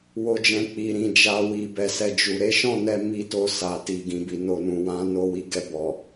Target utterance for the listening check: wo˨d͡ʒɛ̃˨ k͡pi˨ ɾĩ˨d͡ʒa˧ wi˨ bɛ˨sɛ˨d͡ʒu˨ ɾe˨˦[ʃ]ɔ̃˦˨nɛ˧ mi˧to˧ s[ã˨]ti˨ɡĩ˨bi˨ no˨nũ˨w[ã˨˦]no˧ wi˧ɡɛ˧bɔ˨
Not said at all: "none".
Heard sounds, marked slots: ʃ, a˨, ã˨˦

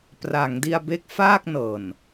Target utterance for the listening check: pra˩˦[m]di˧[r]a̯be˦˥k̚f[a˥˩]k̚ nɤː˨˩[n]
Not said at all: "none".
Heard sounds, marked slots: ŋ, none, aː˥˩, n

